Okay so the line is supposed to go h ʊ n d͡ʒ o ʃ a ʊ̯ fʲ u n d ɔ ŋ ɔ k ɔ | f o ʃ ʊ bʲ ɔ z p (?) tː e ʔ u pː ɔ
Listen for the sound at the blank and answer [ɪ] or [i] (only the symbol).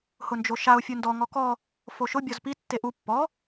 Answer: i